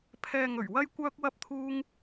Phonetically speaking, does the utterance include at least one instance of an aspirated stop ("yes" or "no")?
yes